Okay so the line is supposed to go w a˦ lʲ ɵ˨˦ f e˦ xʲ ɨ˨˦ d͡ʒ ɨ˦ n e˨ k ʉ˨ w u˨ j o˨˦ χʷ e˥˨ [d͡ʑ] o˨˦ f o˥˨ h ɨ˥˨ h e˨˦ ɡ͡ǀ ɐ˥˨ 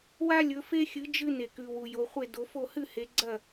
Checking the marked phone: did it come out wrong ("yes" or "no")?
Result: yes